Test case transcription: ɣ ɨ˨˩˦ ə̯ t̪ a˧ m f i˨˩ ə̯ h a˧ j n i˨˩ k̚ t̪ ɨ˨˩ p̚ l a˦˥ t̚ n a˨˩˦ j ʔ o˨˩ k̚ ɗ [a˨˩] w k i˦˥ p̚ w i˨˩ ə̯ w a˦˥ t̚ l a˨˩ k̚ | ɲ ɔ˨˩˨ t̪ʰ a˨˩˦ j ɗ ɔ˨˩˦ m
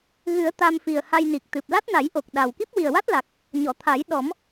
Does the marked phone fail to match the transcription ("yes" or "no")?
no